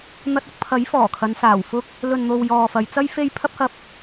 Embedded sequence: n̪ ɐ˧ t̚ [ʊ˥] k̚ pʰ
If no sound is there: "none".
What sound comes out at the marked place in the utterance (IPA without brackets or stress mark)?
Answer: ʊ˧